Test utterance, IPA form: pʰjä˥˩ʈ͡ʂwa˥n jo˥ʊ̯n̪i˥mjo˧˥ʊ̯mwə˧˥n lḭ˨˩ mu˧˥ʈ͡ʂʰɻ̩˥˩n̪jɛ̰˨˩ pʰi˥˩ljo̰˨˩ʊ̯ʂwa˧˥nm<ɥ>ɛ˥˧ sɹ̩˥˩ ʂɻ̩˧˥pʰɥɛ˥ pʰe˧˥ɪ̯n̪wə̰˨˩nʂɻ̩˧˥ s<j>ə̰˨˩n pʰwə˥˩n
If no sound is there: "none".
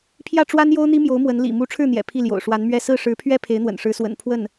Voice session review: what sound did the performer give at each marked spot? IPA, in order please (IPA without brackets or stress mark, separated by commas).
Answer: ɥ, w